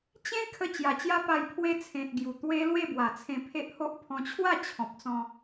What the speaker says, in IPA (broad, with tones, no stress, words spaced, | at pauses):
t͡ɕẽ˦ kʰə˧ t͡ɕja˨˩t͡ɕja˦pa˧j pʰwe˧ t͡sʰẽ˨t̚ ɡju˨˩t̪we˦ lwe˥˧bwa˨˩t͡sʰẽ˧ pʰe˦ʔho˦ʔ pʰɔ̃˧t͡ɕʰwa˥˧t͡ɕʰɔ̃˨p̚t͡sɔ̃˧